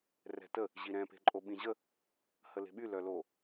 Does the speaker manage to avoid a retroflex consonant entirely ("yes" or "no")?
yes